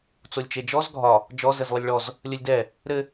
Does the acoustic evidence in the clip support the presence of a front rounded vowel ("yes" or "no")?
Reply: no